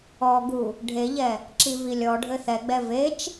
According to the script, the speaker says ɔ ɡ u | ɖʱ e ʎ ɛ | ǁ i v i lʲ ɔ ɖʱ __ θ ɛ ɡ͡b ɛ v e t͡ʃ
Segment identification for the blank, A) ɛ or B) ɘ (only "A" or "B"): B